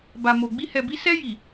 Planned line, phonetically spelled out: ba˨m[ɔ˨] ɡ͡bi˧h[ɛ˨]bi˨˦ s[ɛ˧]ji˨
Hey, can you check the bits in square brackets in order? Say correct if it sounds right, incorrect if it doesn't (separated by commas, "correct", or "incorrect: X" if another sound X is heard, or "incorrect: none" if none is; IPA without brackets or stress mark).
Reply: incorrect: o˨, correct, correct